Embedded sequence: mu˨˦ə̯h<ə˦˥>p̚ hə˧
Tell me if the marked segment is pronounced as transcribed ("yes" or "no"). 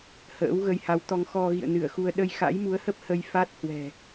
yes